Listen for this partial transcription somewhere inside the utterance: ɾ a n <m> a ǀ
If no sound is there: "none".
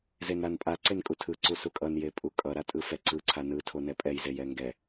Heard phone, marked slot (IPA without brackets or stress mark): pʼ